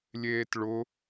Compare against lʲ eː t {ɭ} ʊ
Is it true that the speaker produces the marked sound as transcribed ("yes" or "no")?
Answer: yes